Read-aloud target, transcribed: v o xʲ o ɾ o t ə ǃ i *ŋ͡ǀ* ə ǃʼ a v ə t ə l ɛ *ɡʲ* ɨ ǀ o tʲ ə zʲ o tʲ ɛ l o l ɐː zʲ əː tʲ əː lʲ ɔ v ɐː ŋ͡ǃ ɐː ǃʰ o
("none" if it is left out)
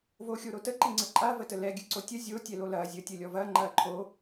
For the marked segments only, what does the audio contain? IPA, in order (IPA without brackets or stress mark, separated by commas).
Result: ŋ͡ǀ, ɡʲ